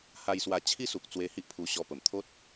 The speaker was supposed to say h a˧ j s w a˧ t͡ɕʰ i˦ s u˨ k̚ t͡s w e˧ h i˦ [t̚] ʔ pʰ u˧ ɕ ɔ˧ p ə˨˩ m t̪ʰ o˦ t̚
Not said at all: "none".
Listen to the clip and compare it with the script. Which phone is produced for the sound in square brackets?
none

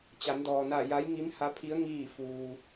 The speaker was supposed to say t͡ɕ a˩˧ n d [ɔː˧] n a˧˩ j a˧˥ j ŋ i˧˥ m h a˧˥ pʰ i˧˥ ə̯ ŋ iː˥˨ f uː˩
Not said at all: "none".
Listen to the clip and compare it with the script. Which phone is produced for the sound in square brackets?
ɔː˩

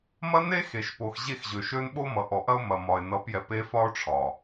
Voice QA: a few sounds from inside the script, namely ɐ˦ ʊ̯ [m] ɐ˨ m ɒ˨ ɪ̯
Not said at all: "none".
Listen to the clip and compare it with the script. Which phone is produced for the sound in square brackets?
m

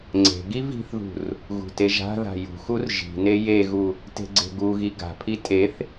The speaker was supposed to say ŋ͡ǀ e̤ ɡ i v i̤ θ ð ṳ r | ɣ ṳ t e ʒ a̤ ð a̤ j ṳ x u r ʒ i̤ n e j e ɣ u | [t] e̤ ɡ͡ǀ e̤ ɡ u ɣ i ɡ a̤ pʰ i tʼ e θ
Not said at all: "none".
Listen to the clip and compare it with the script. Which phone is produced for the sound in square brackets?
t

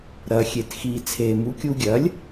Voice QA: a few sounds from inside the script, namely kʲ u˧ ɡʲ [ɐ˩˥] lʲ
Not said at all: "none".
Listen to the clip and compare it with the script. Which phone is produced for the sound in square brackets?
ɐ˩˥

